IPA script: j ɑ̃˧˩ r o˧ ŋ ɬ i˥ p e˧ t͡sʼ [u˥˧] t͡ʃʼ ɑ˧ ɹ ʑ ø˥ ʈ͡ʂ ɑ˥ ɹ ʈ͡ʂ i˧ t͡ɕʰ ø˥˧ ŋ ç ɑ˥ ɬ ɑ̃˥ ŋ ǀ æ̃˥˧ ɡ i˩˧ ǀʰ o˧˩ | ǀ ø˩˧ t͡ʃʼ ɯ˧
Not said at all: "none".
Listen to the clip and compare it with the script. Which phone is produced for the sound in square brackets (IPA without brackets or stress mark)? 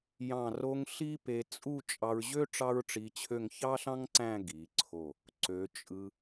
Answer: u˥˧